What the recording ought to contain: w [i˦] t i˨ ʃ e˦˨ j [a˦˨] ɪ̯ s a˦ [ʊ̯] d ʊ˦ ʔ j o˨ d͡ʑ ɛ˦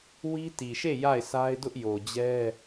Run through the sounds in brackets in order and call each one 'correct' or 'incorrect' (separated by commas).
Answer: correct, correct, incorrect